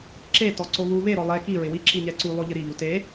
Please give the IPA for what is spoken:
ǁ e t ɔ ǀ o β u β e ɾ ɔ lˠ ɛ k i ɹ ɪ w i ǁ i ɲ ɛ ǀ u lˠ o ʎ ɪ ɾ i ʎ u t e

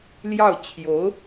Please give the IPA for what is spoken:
l j ɑ˥˩ ʊ̯ t͡ɕʰ j o˧˥ ʊ̯

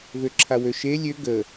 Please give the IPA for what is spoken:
v ø ǁʰ a w ø ʃ e lʲ ø ɡ ə

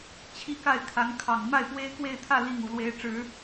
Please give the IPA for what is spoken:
t͡ɕʰ i˥˧ k a˥˩ ɪ̯ kʰ a˧˥ n kʰ ɑ˨˩ ŋ m a˥˩ ɪ̯ p w e˥ ɪ̯ k w e˥˧ ɪ̯ t̪ʰ ä˥˧ l i˥˩ ŋ u˨˩ l w e˧˥ ɪ̯ ʈ͡ʂ ɻ̩˨˩˦

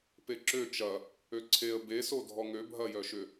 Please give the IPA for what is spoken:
p e ǁ ø t͡ʃ ɐ | ø ǀʰ e ə̯ b e s o dʱ ɔ ŋ ø bʱ ɐ j œ ʃ ʏ

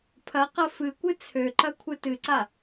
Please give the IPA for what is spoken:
pʰ ɐ q ɐ f ɨ kʷ ɨ t͡sʰ ø ǃ ɐ kʷʰ ɨ t ɨ ǀ a

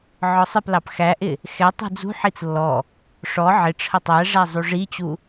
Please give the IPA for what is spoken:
ʕ ɔ sˤ ɪ p l ɑ p x æ ʔ ɪ | x ɛ tˤ i̤ d͡z ṳ ħ i t͡s lː ɔ | ʂ ɔ ʕ ɪ ʈ͡ʂʰ ə tˤ æ ʐ æ zˤ u ʐ i t͡ɕ u

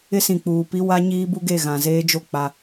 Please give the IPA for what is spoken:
ɪ˦ s ĩ˨ k͡p uː˨ p i˦ w a˦ ɲ iː˦ b u˦ ɡ e˦˨ ɣ ã˨ z eː˦ d͡ʒ o˦˨ k͡p a˦

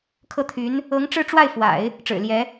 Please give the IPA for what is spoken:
kʰ ɤ˥˩ t̪ʰ y˧˥ n | ɤ˧˥ ŋ ʈ͡ʂ ɻ̩˥˧ ʈ͡ʂ w a˥˩ ɪ̯ f w a̰˨˩˦ ɪ̯ | ʈ͡ʂ ɻ̩˨˩ l j ɛ˧˥

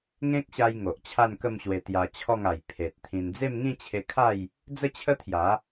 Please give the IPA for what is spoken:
ŋ ẽ˦ k̚ ɕ a˧ j ŋ o˨ ʔ t͡ɕʰ a˥˧ n k ə˥˧ m ɕ w e˧ t̪ j a˧ t͡ɕʰ ɔ˥˧ ŋ a˨˩ j pʰ e˨ t̚ t̪ʰ ĩ˧ n d͡z e˥˧ m ŋ ĩ˥˧ t͡ɕʰ e˧ kʰ a˥˧ j | d͡z ə˥˧ t͡ɕʰ ə˦ t̪ʰ j a˨˦

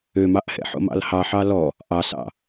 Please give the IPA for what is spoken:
ø m ɑ ʔ h ɛ̰ ħ o̰ m ɑ̰ l h ɑ ħ ɑ l ɔ | ʔ ɑ s ɑ̰

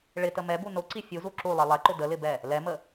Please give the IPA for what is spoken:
ɭ ɪ t ə m ɛ b u n ʊ ǀ i fʲ u z u ǁ u lˠ i lˠ ɛ ǃ ʊ d ə l ɪ b ɛ | l ɛ m ə

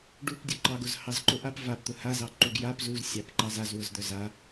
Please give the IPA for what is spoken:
ɖ u p dʲ ʊ ǃ ɑ ɡ ʊ z h ɑ z ǃ ʊ ʔ a p v a p t̪ ʊ h a z ɑ ǃ u ɡ j a p z u z sʲ ɑ p ǃ ɑ z a z w ʊ z d̪ œ z a

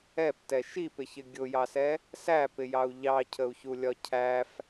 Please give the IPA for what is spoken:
ɛ p t ɛ ʃ i p ɪ ç ɪ ɡʲ ʊ j ɑ s ɛ | s æ p ɪ j ɑ u̯ ʎ ɑ cʰ ə u̯ ç u lʲ ɒ cʰ æ f

